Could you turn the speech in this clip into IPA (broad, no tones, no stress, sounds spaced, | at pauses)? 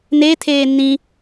n e tʰ eː n ĩ